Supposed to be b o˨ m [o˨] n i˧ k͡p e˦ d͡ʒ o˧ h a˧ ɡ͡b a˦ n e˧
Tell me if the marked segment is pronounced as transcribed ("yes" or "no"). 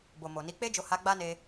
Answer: yes